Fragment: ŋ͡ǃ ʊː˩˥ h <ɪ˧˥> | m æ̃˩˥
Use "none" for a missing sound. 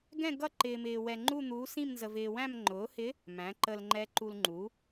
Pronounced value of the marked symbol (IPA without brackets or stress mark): ɪ˧˥